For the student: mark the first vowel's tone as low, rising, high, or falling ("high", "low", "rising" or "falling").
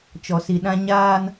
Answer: low